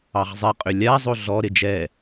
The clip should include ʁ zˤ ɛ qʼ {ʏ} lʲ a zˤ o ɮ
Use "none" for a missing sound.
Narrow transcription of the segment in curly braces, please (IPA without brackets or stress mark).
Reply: ʏ